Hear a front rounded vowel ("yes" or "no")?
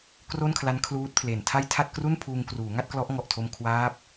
no